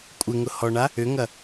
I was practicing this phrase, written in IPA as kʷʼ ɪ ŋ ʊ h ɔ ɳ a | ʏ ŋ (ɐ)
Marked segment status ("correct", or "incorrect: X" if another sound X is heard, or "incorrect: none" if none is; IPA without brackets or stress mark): correct